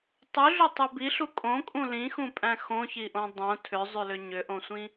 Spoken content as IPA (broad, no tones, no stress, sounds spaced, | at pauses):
tˤ ʉ ɮ ʏ tˤ ʉ b i ɬ u kʼ õ kʼ ũ l ĩ x ũ pʼ æ̃ x õ ç i ʔ õ dˤ õ tʰ ʏ zˤ ʉ l ʏ ɲ ʏ ʔ õ sʷ ĩ